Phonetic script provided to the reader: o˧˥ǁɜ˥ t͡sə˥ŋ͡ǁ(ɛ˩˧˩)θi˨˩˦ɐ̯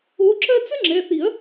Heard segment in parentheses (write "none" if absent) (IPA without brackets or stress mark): ɛ˩˧˩